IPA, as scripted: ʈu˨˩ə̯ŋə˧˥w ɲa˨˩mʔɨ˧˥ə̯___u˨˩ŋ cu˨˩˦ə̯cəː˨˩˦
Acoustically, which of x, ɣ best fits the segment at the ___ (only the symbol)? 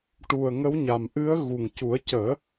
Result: ɣ